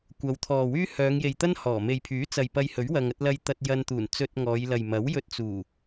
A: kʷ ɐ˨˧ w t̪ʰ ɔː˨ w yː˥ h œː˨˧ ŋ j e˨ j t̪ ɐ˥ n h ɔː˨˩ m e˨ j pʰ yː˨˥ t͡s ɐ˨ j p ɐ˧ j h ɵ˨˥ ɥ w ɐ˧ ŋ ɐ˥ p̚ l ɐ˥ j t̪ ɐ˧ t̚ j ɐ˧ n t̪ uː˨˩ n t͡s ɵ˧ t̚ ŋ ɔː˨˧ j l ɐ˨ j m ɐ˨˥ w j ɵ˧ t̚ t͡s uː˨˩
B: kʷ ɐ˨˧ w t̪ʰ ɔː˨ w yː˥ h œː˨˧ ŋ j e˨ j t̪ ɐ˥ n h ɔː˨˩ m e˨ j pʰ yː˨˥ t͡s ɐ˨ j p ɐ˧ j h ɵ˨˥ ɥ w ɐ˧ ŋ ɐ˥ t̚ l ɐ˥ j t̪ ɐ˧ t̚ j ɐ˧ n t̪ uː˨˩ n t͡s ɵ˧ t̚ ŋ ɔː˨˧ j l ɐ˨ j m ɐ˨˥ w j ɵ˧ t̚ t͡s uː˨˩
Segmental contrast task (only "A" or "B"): B